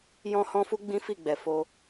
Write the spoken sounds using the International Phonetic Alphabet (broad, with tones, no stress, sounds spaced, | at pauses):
j ɔ̃˦ h ɔ̃˦ f u˦ ɡ͡b ĩ˦ f i˦˨ ɡ͡b ɛ˨ f o˧